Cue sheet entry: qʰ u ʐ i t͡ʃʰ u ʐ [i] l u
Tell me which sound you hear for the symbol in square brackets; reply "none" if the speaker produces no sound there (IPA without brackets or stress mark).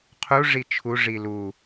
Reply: i